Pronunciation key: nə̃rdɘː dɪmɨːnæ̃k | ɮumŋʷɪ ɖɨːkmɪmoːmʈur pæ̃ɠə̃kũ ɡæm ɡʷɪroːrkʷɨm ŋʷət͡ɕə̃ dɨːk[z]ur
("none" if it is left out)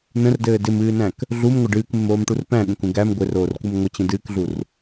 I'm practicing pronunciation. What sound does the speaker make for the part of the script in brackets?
ɮ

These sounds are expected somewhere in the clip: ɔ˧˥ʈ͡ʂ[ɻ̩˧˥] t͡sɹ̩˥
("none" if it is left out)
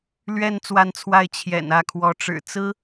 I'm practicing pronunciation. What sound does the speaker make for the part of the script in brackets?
ɻ̩˨˩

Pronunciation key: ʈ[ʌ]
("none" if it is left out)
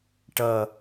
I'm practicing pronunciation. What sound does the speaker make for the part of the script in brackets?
ʌ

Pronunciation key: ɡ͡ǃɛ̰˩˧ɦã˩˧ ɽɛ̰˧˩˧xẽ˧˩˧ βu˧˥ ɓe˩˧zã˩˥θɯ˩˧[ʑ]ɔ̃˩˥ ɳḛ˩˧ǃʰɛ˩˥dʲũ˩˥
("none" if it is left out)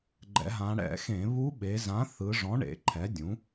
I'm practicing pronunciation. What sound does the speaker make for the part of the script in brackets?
ʐ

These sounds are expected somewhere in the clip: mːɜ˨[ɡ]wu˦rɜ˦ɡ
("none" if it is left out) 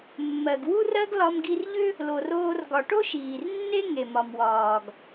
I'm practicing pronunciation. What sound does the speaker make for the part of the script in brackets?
ɡ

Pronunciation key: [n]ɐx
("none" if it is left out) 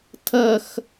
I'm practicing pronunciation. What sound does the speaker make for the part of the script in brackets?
tʰ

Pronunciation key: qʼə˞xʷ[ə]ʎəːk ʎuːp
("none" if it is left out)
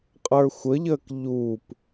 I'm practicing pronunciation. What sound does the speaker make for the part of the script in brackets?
ə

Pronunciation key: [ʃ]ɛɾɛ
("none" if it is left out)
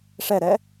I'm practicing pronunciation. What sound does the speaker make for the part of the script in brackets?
ʂ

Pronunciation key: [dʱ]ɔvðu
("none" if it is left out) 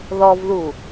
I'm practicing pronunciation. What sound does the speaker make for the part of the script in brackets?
ð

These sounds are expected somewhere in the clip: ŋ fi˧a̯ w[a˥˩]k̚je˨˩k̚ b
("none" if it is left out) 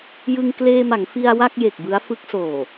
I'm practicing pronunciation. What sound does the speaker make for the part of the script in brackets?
a˥˩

